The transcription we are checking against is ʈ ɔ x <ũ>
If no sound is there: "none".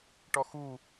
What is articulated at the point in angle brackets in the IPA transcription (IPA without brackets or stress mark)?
u